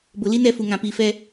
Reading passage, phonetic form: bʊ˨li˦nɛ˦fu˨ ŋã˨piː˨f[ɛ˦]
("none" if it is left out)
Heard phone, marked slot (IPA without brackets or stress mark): ɛ˦